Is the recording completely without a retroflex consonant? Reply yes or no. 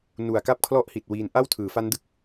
yes